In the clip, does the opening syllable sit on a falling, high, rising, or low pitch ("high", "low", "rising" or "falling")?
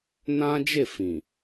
high